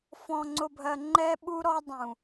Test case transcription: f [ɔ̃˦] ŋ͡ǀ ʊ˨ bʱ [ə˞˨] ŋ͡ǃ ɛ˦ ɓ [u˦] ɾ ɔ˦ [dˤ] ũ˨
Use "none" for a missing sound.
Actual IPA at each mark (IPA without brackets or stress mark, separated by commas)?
ɔ̃˨, ɜ˨, u˦, dˤ